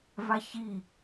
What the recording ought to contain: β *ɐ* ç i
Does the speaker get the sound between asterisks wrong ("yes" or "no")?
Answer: yes